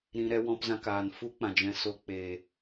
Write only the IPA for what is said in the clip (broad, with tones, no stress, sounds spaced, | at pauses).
ɾ ĩ˧ ɾ ɛ˧ w ɔ̃˧ p z ã˧ k aː˨ n f u˦ k͡p ã˨ d͡ʒ ɛ̃˧ s o˧ k͡p e˨